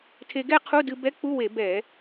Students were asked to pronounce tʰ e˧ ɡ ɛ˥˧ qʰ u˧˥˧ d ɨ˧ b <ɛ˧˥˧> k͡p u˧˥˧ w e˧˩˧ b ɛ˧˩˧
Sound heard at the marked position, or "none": ɛ˧˥˧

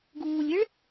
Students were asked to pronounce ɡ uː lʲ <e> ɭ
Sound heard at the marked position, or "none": e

